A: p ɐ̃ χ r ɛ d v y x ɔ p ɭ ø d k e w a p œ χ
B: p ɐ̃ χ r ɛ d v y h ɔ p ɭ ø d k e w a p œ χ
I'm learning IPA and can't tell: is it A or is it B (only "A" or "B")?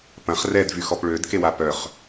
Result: A